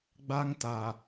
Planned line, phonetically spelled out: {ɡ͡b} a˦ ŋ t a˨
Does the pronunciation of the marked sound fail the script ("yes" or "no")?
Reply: no